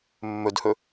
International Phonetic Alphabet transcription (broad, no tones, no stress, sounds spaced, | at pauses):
mː ɵ d h ɵ